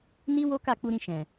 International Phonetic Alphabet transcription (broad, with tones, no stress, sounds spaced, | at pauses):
n i˦ w o˦ k a˦˨ k͡p u˧ ɾ ĩ˧ ʃ ɛ̃˨